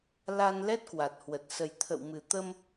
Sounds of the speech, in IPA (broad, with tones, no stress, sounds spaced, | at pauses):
l a˧ n l ɛ˦˥ t̚ k w a˨˩ t̚ h w ə˨˩ t̚ s ə˨˩ j t̪ʰ ə̰˧˨ w m ɨ˨˩ t̪ ə˧ m